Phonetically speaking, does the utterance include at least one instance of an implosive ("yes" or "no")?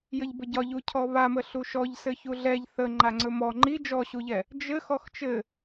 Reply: no